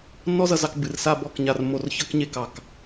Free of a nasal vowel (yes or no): yes